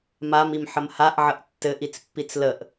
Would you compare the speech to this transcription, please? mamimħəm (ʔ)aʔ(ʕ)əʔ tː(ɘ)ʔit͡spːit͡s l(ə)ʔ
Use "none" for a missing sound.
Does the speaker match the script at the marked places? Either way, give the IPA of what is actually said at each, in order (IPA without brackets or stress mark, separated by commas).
h, ʕ, ɘ, ə